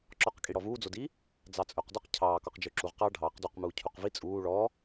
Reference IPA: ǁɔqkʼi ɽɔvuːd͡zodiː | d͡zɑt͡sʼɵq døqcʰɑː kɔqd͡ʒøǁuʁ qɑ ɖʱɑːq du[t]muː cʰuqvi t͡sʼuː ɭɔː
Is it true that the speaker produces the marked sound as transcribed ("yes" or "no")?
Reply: no